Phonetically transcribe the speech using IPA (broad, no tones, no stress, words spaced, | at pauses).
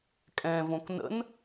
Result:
kʼɛ̃võk nə̰n